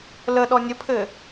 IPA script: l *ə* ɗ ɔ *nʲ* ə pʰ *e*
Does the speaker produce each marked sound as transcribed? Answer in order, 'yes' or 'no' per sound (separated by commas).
yes, yes, no